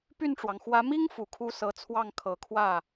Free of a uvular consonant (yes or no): yes